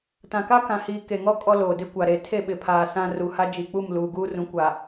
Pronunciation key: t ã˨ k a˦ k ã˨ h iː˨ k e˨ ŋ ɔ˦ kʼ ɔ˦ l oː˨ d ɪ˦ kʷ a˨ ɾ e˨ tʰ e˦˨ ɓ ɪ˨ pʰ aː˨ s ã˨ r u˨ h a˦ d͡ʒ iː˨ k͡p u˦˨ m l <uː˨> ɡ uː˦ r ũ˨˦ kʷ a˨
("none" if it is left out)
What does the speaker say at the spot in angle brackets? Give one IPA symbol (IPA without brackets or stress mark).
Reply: uː˨